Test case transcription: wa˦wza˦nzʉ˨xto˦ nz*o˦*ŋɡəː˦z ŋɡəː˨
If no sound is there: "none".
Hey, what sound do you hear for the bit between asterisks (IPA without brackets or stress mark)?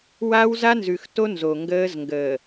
o˨